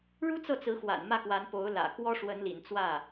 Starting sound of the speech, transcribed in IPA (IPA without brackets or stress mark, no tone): ɻ